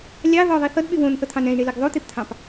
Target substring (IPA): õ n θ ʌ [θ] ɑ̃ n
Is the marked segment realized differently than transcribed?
yes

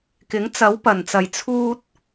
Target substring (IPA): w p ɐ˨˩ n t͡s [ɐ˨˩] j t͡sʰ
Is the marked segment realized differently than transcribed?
no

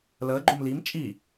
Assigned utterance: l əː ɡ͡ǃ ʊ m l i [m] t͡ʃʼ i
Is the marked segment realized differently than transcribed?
no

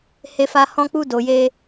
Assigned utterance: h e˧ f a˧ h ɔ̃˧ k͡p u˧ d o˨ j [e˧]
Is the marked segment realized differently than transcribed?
no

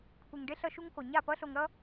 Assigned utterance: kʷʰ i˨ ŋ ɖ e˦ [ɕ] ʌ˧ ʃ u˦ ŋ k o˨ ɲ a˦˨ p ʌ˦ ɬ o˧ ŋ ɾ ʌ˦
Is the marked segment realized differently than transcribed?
yes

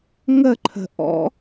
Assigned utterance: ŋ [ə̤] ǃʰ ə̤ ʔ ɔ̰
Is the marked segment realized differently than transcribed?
yes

